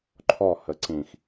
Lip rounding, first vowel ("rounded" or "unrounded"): rounded